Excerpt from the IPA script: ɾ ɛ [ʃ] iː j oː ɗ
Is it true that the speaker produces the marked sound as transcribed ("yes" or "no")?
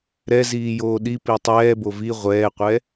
no